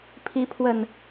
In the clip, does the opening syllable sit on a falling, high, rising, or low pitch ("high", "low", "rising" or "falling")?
rising